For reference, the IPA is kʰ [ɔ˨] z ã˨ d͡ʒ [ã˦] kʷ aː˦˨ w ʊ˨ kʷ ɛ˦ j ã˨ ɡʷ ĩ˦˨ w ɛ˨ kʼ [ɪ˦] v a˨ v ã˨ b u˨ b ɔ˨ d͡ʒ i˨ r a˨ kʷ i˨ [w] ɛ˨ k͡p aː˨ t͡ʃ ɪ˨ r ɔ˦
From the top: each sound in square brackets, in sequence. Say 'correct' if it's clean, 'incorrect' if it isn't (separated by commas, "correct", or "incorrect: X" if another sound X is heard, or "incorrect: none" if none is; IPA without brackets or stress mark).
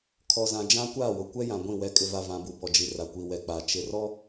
correct, correct, incorrect: ɪ˨, correct